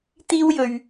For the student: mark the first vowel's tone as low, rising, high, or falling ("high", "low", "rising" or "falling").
high